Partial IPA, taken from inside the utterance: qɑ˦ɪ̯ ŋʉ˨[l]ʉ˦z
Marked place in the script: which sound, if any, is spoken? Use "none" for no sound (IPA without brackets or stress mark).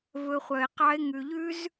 ʎ